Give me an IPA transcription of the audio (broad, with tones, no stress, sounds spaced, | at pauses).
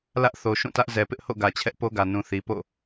l ä˦ ʔ θ o˨ ʃ ũ˦˨ t ä˦ ʔ z ɛ˨ p ɪ˦ ʔ h o̰˦˨ ɡ ä˨ t͡ɕʰ ɛ˦ ʔ p o˦ ɡ ä˨ n ũ˨ θ i˨ p o̰˦˨